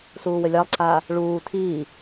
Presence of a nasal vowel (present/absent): absent